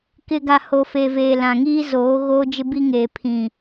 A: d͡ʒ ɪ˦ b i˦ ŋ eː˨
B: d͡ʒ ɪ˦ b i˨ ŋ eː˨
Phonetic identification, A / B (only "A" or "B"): A